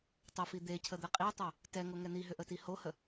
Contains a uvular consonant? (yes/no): yes